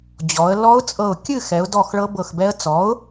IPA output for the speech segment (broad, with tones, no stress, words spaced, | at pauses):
d͡ʑɔ˩˧ə̯ lɔ˦˥ʊ̯t͡sʼɤ˧˩ʊ̯ kʲɨ˥˨xɛ˩˧ʊ̯dɔ˧˩x ɭɤ˦˥bɤ˧˩xbɛ˦˥ə̯ t͡sɔ˩˥ʊ̯